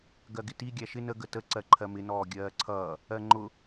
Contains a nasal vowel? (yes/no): no